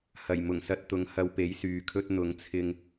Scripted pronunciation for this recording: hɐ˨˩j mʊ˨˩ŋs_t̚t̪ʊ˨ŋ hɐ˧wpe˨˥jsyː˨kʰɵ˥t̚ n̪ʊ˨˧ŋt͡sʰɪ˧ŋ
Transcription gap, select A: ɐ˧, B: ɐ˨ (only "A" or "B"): A